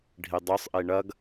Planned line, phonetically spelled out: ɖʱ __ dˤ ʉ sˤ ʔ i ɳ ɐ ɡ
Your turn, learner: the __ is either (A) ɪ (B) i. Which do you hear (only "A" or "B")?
B